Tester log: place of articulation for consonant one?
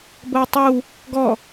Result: labial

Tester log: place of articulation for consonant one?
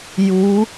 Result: palatal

